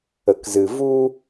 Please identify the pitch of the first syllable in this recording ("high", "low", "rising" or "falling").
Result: low